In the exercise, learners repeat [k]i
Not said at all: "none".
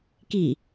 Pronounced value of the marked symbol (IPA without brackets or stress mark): k